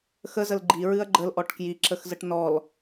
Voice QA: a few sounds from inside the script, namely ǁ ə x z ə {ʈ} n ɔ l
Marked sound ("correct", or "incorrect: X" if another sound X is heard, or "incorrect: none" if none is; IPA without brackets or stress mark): correct